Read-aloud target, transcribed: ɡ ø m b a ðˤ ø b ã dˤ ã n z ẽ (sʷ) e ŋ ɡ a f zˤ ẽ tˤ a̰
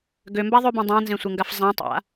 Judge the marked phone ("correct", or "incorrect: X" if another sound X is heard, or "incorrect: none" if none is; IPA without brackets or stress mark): correct